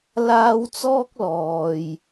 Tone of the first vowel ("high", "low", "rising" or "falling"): high